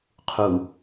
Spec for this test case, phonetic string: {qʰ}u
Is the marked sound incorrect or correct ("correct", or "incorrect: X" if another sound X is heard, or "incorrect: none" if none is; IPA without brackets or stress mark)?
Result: correct